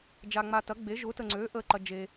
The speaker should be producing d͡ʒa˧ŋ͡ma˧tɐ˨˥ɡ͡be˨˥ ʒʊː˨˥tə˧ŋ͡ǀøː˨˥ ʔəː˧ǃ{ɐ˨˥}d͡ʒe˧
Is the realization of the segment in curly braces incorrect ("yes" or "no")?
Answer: yes